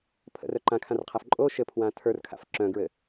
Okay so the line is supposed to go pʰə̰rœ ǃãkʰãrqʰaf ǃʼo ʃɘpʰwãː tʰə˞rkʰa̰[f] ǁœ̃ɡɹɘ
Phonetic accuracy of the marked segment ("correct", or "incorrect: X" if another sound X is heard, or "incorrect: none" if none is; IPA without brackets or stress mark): correct